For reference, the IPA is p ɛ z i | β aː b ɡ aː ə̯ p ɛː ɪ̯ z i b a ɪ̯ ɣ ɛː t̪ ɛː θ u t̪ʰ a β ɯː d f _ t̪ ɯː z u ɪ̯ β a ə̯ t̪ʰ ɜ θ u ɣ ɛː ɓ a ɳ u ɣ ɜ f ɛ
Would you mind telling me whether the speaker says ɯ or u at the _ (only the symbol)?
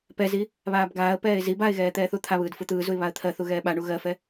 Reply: ɯ